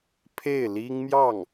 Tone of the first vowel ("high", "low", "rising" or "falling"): falling